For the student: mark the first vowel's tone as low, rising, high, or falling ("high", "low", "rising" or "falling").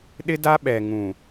high